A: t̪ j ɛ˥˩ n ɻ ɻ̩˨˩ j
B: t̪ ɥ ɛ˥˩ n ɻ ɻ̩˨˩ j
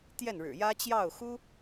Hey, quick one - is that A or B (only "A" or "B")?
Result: A